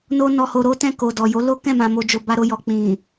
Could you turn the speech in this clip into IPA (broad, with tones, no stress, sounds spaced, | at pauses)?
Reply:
n o˦ n ɔ˧ h o˧ ɾ o˦ t ɛ̃˦˨ k o˨ d ɔ˨ j o˨˦ l o˦ k ɛ̃˦˨ m ã˨ m o˨ d͡ʒ o˨ b a˧ ɾ o˧ j ɔ˨ k͡p ĩ˨